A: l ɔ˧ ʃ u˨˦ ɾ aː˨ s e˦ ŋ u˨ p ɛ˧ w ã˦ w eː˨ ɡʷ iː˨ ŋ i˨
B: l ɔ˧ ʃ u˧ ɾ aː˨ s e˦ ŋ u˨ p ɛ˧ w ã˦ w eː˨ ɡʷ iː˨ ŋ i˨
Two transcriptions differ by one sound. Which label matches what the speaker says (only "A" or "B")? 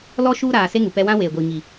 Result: B